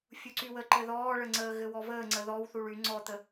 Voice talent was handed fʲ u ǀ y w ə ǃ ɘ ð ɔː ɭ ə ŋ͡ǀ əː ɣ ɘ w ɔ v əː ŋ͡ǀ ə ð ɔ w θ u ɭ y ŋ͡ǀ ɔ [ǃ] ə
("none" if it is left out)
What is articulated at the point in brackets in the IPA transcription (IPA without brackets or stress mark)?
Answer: t̪